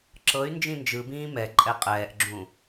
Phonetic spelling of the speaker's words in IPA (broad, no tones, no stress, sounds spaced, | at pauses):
ǁ ɤ y̯ n d͡ʒ ĩ n d͡ʒ ɯ b ĩː m ɛ ǃʼ ɛ qʼ ɛː ʔ ɡ͡ǁ ũ